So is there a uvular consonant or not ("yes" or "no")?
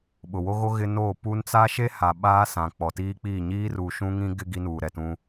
no